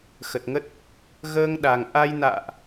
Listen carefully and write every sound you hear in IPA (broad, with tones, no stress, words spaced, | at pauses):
xə˨˩t̚ŋə˦˥t̚ | ɣəː˧ŋ ɗa˨˩ŋ ʔa˧j na̰ː˧˨ʔ